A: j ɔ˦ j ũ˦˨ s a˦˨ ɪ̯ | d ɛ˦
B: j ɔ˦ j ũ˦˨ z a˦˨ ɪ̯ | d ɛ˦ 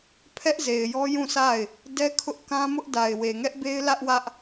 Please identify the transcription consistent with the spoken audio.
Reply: A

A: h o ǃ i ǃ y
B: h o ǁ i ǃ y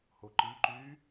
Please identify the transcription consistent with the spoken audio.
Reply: A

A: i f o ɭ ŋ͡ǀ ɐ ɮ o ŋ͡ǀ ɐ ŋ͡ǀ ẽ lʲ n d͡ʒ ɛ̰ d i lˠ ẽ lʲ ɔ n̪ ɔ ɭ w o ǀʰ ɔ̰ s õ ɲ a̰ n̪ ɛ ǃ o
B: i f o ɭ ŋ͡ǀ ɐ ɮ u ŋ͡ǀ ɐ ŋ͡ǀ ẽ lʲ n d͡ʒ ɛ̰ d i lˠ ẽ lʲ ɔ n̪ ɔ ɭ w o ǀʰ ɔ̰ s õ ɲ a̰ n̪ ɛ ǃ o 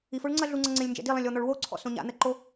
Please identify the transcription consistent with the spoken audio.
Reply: B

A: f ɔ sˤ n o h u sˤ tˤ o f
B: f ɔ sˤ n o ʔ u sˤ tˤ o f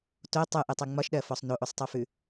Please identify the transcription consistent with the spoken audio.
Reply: B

